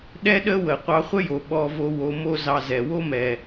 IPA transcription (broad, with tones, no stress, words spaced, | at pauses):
ɗɛ˦ɗə˦wə˨ qʷɑ˧χʷə˦jo˨ ɓɔ˧vo˧ wo˧mo˦zɑ˧ zɛ˨wo˦mɛ˨